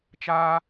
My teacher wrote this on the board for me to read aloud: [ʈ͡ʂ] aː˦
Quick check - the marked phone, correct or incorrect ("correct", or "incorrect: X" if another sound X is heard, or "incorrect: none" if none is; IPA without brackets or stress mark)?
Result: incorrect: t͡ʃ